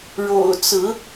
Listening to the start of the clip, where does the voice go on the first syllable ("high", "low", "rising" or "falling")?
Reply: low